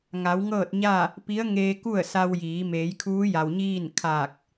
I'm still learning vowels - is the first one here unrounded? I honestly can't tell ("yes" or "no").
yes